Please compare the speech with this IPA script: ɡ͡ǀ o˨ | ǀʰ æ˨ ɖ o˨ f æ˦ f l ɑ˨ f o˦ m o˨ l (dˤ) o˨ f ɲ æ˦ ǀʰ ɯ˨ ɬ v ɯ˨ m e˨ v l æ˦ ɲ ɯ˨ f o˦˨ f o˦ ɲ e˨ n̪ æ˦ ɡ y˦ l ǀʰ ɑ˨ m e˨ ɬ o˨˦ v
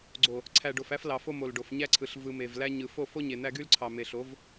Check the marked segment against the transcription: incorrect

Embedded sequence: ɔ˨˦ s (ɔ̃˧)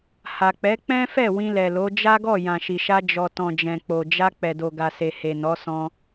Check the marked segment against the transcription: correct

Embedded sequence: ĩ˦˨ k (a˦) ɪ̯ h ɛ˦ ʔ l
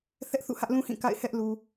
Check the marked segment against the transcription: incorrect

